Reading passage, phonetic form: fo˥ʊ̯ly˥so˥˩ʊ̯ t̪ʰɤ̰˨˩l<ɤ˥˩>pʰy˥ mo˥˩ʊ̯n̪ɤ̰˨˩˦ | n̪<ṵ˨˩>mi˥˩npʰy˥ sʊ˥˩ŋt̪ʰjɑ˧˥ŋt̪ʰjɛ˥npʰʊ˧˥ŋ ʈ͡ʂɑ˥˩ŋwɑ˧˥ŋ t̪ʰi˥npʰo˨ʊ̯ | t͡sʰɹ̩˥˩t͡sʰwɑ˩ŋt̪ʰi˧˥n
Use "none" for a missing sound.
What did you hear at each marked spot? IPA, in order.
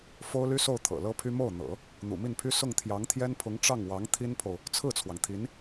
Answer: ɤ˥, ṵ˨˩

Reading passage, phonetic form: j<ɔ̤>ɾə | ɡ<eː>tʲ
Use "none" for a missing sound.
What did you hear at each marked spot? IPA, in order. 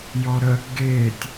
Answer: ɔ, eː

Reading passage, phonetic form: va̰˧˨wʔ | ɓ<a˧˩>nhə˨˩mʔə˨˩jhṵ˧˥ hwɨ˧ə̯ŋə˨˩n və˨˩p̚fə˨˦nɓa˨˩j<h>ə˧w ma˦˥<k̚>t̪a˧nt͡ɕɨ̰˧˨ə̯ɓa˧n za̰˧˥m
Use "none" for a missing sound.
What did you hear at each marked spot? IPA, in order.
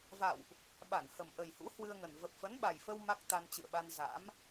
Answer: a˧˩, f, k̚

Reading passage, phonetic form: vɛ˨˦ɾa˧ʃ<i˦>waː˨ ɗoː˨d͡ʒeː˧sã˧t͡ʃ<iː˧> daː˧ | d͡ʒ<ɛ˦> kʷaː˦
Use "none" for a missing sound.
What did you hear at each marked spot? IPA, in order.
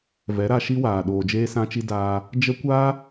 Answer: i˦, i˧, ə˦

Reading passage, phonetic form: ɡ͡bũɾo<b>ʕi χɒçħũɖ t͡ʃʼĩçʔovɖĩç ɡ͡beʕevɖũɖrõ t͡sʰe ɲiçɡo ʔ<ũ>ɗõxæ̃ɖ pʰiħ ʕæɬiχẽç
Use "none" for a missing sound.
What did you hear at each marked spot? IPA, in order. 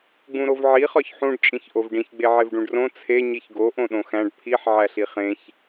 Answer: v, õ

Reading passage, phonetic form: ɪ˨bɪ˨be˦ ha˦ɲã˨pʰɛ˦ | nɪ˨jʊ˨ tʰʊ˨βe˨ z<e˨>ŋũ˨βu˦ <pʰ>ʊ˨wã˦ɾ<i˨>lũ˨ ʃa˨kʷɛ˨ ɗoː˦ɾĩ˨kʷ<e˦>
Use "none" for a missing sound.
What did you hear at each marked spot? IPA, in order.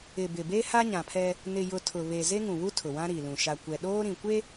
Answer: e˦, tʰ, i˨, e˦

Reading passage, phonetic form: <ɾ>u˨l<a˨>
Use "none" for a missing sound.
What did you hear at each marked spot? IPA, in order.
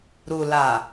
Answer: ɾ, a˨

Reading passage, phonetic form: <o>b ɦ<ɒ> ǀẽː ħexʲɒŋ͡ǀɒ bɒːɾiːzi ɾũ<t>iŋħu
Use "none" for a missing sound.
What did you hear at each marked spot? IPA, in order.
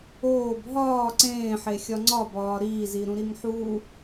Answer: oː, ɒː, ɾ

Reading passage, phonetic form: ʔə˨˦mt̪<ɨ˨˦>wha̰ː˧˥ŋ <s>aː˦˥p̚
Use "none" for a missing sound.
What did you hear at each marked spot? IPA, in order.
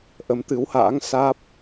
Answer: ɨ˨˦, s

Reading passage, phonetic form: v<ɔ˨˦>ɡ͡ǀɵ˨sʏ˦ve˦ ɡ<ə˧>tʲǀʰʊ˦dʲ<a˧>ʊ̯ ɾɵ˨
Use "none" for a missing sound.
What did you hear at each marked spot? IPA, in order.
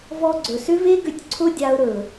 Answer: ɔ˧, ʏ˧, a˧

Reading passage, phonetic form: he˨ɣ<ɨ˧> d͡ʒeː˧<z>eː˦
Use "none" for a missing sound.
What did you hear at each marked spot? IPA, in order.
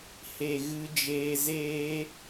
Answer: ɨ˧, z

